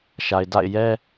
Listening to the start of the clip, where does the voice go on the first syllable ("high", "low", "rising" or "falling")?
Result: low